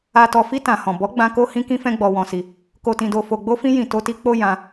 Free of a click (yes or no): yes